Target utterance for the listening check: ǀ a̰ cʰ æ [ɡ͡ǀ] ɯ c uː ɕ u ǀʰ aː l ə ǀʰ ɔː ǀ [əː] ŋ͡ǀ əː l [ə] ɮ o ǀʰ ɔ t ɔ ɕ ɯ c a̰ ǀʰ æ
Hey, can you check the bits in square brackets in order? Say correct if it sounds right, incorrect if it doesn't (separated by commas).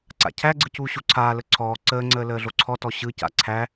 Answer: correct, correct, incorrect